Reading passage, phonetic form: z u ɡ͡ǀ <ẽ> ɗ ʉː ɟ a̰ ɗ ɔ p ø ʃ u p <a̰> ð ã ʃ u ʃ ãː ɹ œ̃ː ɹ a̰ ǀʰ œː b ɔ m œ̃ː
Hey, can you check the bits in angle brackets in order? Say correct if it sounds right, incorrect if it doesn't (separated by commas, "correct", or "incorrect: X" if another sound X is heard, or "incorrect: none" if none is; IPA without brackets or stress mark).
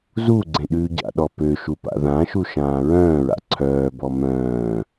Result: correct, correct